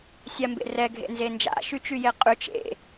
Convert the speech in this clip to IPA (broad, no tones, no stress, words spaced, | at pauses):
sʲambḛrɛ ɡʱḛnzend͡ʒa̰ ʃyt͡ʃyjeqʼy t͡ʃḛ